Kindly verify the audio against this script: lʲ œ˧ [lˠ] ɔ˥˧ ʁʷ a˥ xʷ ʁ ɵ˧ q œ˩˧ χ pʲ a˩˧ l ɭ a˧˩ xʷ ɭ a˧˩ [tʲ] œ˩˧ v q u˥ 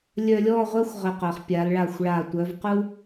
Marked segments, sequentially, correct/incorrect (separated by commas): incorrect, incorrect